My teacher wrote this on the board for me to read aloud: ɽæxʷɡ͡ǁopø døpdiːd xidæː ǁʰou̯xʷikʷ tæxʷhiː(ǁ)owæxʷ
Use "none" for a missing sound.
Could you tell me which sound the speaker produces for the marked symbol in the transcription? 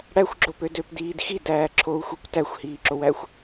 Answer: ǁ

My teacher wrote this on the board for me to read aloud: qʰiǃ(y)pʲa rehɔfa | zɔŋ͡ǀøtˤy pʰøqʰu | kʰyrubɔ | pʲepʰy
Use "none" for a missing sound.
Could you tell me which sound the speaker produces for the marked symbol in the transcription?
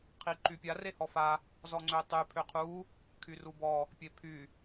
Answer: y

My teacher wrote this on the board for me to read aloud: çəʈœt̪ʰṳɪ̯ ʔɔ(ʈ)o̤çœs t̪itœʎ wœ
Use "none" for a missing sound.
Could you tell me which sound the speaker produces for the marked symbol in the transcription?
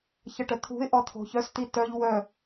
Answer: t̪ʰ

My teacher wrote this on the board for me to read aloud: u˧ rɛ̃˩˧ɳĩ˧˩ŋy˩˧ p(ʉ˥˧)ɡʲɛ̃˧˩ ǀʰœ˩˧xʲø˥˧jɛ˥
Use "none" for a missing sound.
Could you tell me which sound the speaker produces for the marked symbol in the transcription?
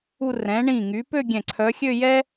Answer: ø˥˧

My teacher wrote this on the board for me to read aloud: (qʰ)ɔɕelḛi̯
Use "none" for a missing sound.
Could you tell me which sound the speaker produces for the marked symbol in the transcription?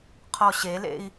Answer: qʰ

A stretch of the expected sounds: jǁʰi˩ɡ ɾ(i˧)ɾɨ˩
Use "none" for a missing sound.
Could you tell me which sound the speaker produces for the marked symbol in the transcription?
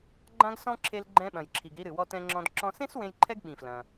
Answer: i˧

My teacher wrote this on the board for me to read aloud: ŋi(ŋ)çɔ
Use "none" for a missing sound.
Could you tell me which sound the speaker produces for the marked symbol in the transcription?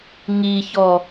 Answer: none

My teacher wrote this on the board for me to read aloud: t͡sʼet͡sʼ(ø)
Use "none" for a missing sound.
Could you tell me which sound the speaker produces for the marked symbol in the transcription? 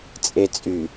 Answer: y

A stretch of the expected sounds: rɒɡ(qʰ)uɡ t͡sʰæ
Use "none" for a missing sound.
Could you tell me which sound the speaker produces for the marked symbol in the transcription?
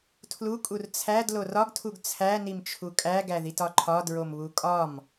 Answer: tʰ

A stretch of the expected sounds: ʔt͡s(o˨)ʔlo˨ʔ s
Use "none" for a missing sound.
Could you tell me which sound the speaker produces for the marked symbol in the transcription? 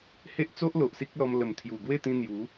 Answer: o˦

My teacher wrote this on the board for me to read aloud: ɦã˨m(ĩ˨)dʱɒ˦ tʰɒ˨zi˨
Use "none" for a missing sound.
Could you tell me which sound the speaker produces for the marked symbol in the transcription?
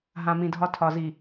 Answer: ĩ˨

